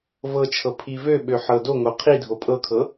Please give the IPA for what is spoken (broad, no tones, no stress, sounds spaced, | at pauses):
v ɤ t͡ʃʰ ɤ pʰ i v ø ɓ ø ħ ɤ d o ŋ o qʰ i dʱ o pʼ ɤ kʰ ɤ